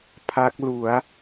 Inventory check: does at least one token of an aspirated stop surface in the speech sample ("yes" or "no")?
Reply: yes